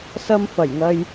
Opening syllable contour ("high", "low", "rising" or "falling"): high